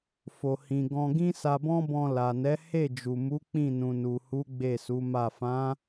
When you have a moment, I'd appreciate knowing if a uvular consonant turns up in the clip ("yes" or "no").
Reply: no